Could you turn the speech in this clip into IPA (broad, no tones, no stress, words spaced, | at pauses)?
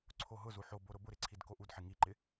ǀʰoɦʊzu ħobo ɾʊbʊɾɪ ǀʰidkoʔudħɪ ŋiǃɪ